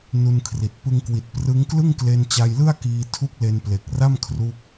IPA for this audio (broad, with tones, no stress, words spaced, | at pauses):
nu˧nkʰri˨˩t̚ pɯ˧ŋkwi˨˩t̚ prɯ˦˥ŋ klɯ˥˩ŋkle˧nt͡ɕa˧jlɯ˥˩a̯ kiː˧ tʰu˦˥k̚le˧nple˨˩k̚ra˥˩m kʰruː˦˥k̚